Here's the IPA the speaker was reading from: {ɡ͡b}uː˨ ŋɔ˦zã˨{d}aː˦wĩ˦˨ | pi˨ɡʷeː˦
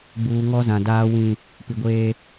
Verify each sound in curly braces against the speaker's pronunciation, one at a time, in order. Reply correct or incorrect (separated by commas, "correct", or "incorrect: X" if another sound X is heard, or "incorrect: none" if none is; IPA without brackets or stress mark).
correct, correct